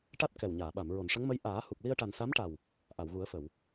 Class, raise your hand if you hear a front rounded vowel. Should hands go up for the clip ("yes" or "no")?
no